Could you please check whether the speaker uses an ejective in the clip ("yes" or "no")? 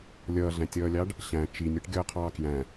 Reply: no